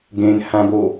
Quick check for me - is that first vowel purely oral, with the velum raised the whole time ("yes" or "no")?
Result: no